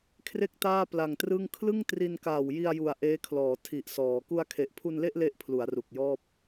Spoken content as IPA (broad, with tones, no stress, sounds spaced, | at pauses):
kʰ r e˥˩ k̚ t aː˥˩ p l a˨˩ ŋ t r ɯ˥˩ ŋ kʰ l ɯ˥˩ ŋ t r i˧ n k aː˨˩ w j i˧ a̯ j u˩˦ a̯ ʔ eː˦˥ kʰ l ɔː˩˦ tʰ i˨˩ ʔ s ɔː˩˦ k u˧ a̯ kʰ e˨˩ ʔ pʰ u˧ n l e˥˩ ʔ l e˥˩ ʔ pʰ l u˩˦ a̯ r u˨˩ k̚ j ɔː˥˩ p̚